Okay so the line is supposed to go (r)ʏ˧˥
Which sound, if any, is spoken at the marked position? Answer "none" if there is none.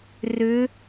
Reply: r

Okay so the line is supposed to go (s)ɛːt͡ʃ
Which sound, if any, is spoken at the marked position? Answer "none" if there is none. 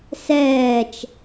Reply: s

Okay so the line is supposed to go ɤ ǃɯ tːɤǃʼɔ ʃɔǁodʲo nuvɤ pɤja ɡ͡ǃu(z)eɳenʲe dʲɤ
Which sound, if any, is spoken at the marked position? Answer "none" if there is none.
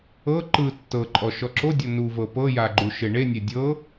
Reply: ʃ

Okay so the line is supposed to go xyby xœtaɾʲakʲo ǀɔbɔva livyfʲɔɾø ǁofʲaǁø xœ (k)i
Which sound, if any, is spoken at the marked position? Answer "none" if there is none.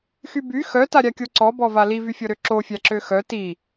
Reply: t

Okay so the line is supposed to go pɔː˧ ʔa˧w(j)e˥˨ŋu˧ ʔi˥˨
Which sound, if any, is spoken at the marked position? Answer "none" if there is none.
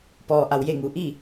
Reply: j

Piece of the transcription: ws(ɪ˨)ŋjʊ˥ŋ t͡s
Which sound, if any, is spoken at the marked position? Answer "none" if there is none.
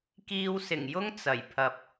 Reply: ɪ˨˩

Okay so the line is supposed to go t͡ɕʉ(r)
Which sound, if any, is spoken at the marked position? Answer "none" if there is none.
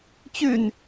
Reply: n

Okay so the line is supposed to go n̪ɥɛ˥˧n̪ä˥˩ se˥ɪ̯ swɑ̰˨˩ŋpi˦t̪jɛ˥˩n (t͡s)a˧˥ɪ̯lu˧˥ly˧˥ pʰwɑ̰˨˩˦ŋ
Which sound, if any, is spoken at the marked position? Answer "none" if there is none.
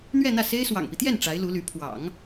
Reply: ʈ͡ʂ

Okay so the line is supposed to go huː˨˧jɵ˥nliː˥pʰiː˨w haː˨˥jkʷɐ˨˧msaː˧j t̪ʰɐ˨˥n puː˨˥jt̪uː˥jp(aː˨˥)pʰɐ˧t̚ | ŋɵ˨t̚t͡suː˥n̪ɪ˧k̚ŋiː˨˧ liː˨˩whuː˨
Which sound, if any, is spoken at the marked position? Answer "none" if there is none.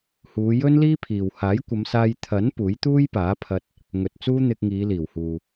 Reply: aː˨˥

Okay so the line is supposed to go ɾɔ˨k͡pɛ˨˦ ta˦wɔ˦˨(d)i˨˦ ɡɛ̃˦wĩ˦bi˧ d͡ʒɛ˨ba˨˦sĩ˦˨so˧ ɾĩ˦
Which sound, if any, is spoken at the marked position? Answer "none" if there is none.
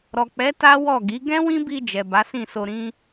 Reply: ɡ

